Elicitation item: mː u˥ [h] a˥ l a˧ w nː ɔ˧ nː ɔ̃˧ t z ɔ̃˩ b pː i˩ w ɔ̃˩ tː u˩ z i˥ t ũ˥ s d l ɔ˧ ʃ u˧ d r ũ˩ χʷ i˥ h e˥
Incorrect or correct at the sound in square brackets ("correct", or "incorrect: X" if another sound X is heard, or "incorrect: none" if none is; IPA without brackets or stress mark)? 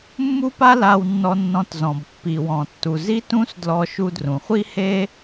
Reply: incorrect: p